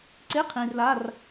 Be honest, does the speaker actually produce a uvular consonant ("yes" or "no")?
yes